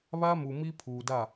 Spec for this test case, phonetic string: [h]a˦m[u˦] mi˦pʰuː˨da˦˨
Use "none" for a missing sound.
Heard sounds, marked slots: β, u˨

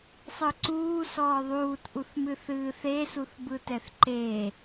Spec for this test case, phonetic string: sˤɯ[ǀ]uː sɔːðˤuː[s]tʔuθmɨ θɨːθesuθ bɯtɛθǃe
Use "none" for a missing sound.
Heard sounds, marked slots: ǀ, none

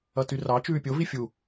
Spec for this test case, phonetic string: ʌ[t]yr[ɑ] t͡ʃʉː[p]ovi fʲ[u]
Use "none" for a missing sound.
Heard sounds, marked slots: t, ɑ, pʲ, u

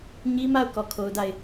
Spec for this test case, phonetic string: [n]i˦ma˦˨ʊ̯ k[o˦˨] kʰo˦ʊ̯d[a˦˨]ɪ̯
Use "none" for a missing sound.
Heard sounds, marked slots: ɲ, ɔ˦˨, a˦˨

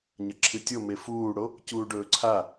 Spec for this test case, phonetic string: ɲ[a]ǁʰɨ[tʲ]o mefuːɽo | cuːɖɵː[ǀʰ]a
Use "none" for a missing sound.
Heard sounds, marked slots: ɐ, tʲ, ǀʰ

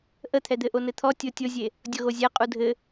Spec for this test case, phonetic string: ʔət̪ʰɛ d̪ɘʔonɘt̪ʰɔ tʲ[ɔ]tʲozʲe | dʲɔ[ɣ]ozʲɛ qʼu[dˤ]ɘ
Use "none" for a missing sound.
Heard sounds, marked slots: o, ɣ, dʱ

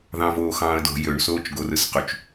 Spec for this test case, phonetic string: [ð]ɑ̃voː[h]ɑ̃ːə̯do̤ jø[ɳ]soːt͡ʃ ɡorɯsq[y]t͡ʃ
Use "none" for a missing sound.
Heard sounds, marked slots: ð, x, ɳ, y

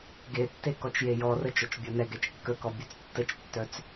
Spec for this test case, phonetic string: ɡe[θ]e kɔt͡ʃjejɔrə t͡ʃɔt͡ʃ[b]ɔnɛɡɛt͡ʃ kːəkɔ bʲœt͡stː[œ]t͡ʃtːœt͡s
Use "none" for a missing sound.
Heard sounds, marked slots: tː, bʲ, ə

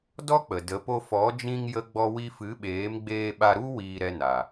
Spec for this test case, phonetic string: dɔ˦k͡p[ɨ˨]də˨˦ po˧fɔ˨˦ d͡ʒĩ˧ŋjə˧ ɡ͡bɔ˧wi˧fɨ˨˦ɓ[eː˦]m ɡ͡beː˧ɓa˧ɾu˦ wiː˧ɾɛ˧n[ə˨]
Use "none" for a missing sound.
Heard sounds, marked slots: ə˨, eː˨˦, a˨

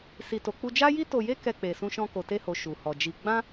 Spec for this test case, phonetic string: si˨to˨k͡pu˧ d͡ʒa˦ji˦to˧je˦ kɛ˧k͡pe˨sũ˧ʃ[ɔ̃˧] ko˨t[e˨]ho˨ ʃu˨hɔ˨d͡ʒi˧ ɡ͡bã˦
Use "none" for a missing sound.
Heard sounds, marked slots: ɔ̃˧, e˧

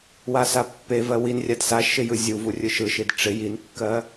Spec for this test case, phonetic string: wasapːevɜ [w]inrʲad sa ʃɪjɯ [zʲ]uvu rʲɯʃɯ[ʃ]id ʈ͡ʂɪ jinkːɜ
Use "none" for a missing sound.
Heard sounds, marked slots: w, zʲ, ʃ

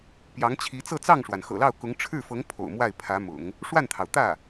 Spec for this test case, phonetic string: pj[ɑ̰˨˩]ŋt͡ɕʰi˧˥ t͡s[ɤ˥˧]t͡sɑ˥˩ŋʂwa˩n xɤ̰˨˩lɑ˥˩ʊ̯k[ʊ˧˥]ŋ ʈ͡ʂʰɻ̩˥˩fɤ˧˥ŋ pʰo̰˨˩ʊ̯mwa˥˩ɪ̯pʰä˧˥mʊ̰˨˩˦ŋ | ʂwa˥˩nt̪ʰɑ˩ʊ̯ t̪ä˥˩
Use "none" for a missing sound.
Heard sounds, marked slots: ɑ˧˥, ɤ˥˧, ʊ˧˥

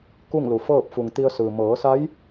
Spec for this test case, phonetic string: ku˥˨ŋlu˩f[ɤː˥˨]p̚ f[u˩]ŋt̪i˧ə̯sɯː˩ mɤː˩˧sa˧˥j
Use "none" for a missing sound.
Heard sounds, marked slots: ɤː˥˨, u˩

